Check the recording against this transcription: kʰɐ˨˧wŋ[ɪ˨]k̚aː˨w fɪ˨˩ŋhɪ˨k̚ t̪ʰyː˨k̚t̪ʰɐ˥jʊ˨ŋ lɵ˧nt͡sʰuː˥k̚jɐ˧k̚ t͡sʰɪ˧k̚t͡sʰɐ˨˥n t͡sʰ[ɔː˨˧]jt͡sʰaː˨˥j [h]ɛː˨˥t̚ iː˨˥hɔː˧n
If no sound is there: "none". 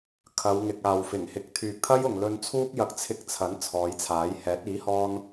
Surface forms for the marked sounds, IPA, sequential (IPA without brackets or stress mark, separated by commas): ɪ˨, ɔː˨˧, h